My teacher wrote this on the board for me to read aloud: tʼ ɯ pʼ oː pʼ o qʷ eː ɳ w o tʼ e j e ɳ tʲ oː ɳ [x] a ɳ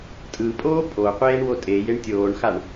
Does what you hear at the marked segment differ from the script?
no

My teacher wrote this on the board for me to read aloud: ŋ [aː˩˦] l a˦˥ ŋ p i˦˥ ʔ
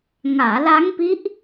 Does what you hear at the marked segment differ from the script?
no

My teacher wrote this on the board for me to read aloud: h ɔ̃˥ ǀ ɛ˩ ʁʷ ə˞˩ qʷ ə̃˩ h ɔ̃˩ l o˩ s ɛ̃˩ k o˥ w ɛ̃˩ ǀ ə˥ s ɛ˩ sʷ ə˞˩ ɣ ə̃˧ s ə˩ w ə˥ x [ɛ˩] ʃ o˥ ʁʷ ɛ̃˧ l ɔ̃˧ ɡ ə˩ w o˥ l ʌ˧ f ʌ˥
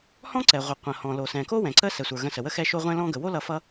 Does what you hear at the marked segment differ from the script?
yes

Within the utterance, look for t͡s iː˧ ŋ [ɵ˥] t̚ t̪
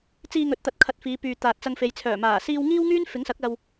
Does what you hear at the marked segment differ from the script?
yes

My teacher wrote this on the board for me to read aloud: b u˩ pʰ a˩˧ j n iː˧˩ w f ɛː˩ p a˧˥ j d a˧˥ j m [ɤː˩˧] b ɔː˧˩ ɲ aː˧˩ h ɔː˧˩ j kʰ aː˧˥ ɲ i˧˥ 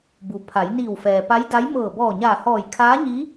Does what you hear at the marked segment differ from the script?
yes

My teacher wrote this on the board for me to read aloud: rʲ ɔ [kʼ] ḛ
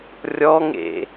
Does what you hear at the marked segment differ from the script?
yes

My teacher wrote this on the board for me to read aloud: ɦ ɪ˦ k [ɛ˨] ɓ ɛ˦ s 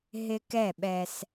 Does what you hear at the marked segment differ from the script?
yes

